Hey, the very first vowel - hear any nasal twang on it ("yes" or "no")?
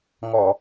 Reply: no